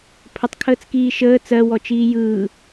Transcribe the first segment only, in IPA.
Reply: pʰ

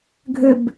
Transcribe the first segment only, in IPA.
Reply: ɡʱ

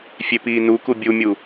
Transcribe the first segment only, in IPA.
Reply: fʲ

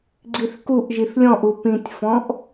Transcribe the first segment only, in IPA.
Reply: ɡ͡ǀ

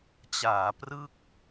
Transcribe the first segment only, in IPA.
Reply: t͡ɕ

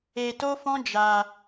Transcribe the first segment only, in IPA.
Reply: e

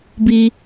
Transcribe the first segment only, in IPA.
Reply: b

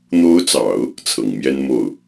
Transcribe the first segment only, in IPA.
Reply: n̪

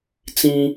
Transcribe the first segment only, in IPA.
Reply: t͡s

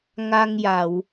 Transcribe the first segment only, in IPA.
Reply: ŋ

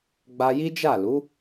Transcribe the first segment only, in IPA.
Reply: ɡ͡b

